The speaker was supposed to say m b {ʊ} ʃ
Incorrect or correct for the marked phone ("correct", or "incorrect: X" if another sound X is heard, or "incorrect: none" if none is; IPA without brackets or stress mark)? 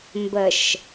incorrect: ə